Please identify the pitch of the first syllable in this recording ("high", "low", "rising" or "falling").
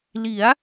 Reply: rising